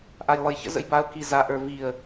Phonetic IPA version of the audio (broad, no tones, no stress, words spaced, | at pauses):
ʔajlˠɯjçə̰ zə̰jbaʊ̯ kiza ʔə˞viə̯